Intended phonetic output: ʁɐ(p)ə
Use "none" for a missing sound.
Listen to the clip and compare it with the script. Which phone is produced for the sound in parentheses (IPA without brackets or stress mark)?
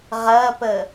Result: p